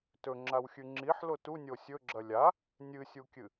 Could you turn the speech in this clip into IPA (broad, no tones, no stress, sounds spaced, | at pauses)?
t ɵ ŋ͡ǁ a w xʲ ʉ ŋ͡ǁ i ħ l o t u nʲ o sʲ ɵ ɡ͡ǁ ɐ lʲ a | nʲ ɨ sʲ u kʲ ɨ